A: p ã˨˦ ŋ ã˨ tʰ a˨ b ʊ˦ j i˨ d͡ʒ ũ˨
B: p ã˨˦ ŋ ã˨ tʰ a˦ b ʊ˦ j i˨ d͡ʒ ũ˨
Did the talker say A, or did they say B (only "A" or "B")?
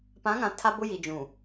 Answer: B